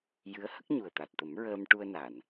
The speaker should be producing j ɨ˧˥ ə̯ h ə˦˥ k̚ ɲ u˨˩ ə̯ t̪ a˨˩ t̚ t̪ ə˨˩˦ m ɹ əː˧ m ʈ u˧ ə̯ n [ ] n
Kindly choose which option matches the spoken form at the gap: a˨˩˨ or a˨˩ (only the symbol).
a˨˩˨